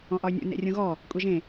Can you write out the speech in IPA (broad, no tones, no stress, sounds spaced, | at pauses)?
ɔ̃ ʔ ɒ y̯ nʲ ṵ n ḛ rʲ ũ ɣ ɔ | kʷʼ e ʒ ẽ